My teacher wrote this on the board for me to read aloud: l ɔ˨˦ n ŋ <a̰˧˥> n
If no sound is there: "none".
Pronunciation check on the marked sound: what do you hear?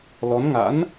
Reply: a̰˧˥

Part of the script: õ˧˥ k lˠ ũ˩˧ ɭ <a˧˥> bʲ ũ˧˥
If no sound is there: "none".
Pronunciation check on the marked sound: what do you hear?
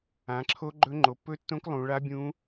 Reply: a˧˥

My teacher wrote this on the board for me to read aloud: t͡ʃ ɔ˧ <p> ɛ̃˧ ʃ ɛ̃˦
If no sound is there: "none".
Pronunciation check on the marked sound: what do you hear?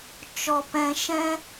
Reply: p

